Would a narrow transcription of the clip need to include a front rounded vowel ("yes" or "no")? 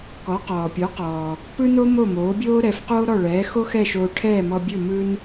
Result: no